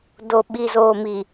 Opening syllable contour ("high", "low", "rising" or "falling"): low